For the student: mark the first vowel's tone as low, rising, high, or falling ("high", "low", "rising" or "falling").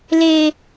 high